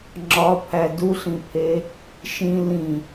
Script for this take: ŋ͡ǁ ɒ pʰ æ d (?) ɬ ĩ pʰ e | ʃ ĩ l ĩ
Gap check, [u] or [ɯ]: u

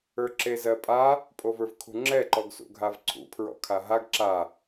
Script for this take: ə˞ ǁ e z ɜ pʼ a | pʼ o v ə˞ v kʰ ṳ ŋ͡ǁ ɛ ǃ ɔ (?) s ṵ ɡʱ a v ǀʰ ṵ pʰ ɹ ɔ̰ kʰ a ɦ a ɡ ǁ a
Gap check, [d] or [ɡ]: ɡ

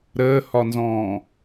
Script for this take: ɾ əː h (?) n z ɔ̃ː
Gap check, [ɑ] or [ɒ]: ɒ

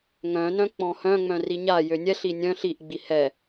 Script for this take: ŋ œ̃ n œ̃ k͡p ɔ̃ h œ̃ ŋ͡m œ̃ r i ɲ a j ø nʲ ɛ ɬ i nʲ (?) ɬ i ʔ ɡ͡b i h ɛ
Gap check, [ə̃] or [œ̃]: œ̃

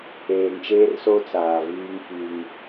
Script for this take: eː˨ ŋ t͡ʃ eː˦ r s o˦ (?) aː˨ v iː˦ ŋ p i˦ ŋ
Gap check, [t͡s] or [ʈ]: t͡s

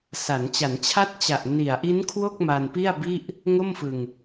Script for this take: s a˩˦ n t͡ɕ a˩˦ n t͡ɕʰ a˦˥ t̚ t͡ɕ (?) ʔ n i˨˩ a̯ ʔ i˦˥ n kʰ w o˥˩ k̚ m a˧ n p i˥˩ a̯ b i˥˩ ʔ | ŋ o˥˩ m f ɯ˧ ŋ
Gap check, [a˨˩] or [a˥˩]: a˨˩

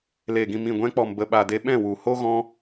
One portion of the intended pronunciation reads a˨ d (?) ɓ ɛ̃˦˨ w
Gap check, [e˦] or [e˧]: e˧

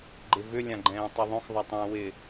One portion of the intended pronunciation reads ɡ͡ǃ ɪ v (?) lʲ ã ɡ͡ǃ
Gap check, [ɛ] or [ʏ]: ʏ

